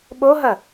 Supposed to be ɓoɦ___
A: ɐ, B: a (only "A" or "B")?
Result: A